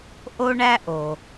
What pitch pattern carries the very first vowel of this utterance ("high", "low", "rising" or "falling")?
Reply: high